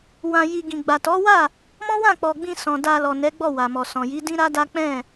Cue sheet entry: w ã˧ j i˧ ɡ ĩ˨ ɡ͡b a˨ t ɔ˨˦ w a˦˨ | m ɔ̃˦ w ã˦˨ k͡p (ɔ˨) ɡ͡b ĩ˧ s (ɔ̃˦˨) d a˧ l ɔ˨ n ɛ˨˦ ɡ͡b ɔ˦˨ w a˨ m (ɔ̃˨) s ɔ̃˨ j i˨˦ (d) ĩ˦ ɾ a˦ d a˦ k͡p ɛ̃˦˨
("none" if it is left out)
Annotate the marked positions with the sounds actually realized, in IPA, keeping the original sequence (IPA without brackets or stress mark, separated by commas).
ɔ˨, ɔ̃˨, ɔ˨, d